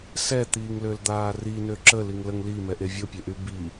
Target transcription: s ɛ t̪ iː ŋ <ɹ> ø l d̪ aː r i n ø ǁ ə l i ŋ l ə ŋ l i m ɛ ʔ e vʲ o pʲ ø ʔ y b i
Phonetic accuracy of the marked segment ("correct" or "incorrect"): incorrect